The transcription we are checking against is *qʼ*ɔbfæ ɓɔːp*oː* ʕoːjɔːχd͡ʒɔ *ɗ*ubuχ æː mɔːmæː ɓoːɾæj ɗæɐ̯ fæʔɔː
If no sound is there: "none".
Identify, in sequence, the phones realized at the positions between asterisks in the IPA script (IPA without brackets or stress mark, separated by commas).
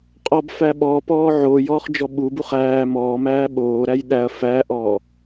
qʼ, ɔː, ɓ